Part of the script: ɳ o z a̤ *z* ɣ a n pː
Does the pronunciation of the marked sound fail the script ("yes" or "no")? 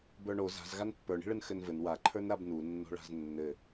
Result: no